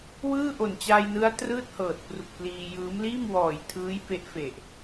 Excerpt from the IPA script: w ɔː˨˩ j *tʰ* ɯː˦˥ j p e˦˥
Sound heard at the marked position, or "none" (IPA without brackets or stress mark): tʰ